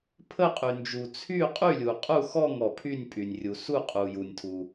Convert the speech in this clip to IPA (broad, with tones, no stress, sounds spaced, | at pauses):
pʰ ə˥˧ qʼ y˨ n d͡ʒ u˨ t͡sʰ y˥˧ qʼ y˥˧ lʲ u˨ qʼ u˥˧ x ɔ˥˧ ŋ ɔ˨ pʰ y˥˧ nʲ pʼ y˨ nʲ rʲ u˨ s u˥˧ qʼ u˨ j u˨ nʲ tʰ u˨